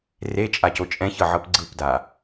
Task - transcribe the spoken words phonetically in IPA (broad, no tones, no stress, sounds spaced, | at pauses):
r e t͡ʃʼ a c o t͡ʃʼ ɛ̃ ç ɤ ʕ ɤ p ɡ͡ǀ ɯ p d a